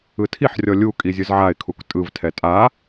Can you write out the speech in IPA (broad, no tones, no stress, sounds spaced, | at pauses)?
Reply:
ɯ tʰ i ħ rʲ ɔ lʲ u kʼ i zʲ ɯ z ʕ a ɪ̯ kʰ u k tʼ ɯ v tʰ ɛ tʼ a